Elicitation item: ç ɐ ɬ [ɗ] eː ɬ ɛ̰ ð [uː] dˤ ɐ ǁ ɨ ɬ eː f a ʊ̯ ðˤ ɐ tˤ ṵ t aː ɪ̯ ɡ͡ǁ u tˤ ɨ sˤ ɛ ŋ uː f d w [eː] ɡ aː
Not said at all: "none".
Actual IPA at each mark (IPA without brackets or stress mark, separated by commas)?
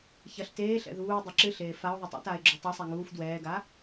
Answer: t, uː, ɛː